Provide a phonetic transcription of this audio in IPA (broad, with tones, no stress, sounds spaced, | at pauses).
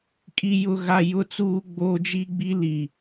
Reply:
kʼ i˦ j ʊ˦ ɣ a˦ j ʊ˦ t͡s uː˦ ɡ͡b oː˦ d͡ʒ i˦ ɡ͡b i˦ l i˨